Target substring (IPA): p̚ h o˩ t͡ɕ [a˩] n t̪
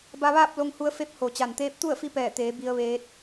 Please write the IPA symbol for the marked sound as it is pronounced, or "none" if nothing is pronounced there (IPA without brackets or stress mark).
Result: a˩